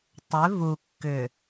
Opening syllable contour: rising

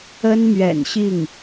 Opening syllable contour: high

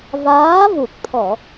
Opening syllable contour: rising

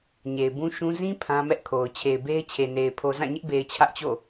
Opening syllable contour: low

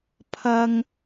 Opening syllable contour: high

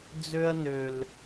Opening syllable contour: high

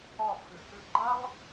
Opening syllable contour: falling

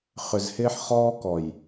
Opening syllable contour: low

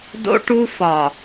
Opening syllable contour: high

